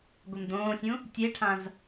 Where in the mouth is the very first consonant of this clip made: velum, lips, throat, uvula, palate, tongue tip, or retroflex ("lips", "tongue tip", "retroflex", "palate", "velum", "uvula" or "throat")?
velum